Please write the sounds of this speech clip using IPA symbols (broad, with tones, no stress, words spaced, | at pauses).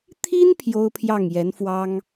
t̪ʰi˥n pʰjo˥ʊ̯pʰjɑ˥˩ŋjɛ˧˥nfwɑ˥ŋ